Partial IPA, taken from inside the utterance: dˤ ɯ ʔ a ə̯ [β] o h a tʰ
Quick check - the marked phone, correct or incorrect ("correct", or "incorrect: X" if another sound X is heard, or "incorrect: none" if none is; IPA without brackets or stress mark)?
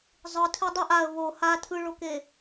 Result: correct